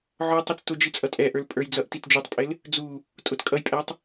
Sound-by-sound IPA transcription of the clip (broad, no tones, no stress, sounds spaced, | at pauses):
ʕ ɔ tˤ i t͡s t ʊ d͡ʒ i t͡sʼ ʌ tʼ ɛ ʔ ə˞ l pʼ ə˞ j d͡z ʌ ʔ t i t d͡ʒ u tˤ pʼ ɪ l | d͡z u | tʼ ʊ t kʼ ʌ j pʼ æ tˤ